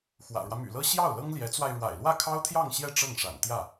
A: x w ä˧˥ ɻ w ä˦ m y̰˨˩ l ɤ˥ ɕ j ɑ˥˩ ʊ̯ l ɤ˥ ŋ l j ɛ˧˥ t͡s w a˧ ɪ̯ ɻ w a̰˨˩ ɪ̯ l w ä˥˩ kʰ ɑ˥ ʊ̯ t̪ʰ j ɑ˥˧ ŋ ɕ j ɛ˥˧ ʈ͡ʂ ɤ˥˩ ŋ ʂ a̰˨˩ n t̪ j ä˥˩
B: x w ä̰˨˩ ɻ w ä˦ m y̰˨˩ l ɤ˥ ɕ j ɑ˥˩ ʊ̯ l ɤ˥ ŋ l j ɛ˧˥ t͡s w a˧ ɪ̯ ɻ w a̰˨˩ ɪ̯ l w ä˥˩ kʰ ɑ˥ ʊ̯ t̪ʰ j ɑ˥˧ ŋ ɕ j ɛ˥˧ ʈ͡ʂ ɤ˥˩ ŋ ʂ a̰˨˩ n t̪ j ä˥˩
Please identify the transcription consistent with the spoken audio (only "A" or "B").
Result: B